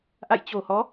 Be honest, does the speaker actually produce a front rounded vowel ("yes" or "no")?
no